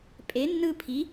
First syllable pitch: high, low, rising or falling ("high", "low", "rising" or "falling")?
rising